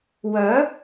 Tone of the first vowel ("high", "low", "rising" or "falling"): rising